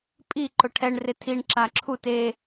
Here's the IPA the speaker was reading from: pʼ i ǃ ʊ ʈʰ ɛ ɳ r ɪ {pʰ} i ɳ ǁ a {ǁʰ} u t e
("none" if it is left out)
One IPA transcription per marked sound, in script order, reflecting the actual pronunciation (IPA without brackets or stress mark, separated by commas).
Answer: tʰ, ǁʰ